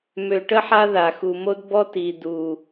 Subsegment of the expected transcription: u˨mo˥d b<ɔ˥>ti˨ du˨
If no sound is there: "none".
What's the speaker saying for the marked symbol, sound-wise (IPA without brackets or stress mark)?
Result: ɔ˥